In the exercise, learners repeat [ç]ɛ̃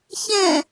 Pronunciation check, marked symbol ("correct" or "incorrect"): correct